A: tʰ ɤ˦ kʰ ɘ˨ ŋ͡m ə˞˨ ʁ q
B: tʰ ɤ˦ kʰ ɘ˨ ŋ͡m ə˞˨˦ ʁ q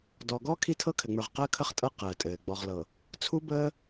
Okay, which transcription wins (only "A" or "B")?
A